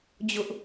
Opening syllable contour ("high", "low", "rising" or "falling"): high